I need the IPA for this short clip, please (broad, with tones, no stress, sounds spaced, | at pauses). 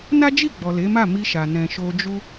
n a˦ d͡ʒ i˦˨ ɡ͡b ɔ˨ l e˨˦ m a˦˨ m i˧ ʃ a˨ n ɛ̃˨ ʃ o˧ d͡ʒ u˦